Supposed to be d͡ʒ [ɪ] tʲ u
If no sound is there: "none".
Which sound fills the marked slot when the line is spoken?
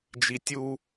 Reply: i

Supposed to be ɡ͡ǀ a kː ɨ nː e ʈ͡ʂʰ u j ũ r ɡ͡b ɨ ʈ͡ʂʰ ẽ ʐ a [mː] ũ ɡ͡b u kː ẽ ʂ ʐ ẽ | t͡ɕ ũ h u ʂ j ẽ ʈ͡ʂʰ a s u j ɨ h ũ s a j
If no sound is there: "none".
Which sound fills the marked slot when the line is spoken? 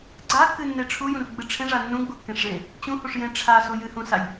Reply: nː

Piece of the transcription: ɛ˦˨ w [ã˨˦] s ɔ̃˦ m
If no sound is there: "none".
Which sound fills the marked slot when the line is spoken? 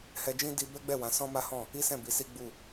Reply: ã˨˦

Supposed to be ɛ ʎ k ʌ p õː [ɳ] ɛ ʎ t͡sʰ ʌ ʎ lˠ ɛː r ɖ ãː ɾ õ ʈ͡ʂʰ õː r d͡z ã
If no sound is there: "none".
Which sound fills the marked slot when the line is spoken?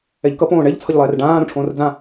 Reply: ɳ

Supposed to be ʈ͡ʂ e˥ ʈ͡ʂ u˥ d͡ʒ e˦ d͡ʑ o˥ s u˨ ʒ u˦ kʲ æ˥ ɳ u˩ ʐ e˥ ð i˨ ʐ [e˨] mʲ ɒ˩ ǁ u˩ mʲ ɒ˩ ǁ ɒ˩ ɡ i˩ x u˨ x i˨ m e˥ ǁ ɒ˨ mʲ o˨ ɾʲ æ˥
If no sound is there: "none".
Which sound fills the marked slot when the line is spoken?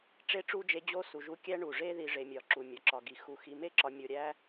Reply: e˨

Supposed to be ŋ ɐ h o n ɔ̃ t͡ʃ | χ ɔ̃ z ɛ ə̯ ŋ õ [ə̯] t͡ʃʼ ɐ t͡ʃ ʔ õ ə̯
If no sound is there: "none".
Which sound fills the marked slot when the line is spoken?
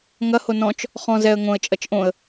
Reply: ə̯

